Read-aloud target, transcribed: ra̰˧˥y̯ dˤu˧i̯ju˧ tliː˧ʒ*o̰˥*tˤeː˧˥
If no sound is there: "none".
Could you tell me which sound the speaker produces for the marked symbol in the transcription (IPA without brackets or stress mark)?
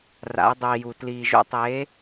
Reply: o̰˥